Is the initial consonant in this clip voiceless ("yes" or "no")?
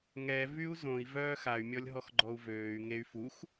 no